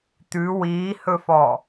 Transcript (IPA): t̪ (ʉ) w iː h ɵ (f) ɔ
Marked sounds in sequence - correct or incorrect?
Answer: correct, correct

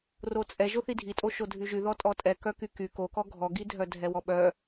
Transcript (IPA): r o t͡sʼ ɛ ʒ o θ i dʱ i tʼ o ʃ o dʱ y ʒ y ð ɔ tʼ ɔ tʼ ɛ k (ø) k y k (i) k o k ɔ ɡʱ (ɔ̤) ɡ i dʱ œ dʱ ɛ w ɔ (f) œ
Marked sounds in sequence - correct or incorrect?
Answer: incorrect, incorrect, incorrect, incorrect

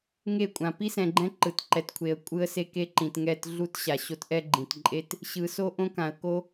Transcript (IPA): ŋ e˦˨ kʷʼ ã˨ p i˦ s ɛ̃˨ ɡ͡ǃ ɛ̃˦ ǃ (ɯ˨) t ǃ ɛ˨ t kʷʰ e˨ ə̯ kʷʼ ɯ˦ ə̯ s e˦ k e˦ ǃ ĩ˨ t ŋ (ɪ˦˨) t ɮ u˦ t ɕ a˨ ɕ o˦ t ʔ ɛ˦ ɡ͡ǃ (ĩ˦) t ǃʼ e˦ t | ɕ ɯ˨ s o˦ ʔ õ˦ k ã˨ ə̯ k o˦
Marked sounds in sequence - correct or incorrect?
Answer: correct, incorrect, incorrect

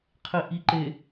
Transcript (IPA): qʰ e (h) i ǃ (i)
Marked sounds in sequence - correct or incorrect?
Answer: incorrect, incorrect

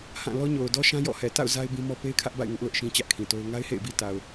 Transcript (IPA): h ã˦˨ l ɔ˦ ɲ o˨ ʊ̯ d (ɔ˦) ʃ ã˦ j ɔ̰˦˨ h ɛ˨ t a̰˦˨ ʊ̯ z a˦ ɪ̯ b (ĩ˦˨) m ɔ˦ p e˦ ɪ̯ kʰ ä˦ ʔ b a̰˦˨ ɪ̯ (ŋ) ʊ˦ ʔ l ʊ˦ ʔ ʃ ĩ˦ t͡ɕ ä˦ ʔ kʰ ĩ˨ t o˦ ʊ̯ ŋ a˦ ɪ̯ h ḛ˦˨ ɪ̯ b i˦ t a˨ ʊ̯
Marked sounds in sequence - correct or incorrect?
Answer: correct, incorrect, correct

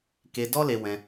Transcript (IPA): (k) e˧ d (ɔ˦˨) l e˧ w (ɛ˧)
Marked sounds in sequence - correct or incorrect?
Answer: correct, incorrect, incorrect

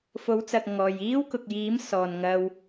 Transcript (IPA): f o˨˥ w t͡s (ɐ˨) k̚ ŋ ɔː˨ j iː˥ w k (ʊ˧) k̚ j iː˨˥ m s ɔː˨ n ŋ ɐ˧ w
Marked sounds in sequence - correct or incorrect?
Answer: correct, incorrect

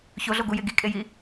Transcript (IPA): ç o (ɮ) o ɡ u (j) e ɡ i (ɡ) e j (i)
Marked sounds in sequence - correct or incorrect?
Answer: correct, correct, incorrect, correct

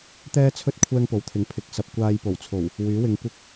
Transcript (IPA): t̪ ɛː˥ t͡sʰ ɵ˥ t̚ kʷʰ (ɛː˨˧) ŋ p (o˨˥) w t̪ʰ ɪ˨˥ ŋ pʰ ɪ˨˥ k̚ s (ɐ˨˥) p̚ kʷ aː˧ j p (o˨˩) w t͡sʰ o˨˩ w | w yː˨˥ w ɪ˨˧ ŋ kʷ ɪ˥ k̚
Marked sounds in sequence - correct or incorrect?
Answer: incorrect, correct, correct, correct

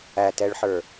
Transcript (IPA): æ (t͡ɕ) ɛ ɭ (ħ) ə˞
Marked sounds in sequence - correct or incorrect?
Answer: incorrect, correct

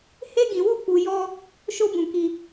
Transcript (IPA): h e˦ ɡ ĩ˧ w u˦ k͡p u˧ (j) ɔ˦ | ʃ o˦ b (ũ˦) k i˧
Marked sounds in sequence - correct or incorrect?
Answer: correct, incorrect

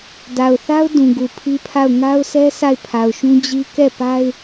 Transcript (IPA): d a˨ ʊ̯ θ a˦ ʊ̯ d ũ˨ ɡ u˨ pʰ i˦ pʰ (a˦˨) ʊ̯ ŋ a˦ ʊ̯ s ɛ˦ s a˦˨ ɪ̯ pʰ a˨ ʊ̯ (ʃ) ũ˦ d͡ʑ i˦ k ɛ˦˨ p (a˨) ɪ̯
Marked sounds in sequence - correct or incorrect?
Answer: correct, correct, incorrect

